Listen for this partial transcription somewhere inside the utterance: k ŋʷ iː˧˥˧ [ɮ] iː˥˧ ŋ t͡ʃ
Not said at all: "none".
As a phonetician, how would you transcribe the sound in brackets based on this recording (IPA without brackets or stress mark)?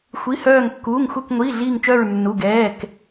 ɮ